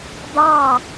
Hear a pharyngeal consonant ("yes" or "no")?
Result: no